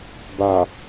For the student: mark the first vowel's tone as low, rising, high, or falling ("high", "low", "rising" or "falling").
low